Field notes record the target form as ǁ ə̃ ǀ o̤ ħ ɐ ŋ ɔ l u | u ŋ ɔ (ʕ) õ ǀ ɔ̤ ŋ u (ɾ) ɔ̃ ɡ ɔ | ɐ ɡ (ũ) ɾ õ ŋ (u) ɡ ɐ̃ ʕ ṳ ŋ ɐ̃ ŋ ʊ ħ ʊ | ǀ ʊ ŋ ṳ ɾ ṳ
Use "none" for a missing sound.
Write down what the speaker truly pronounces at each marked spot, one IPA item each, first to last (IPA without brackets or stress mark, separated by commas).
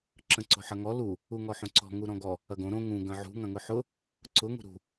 ħ, ɾ, õ, ũ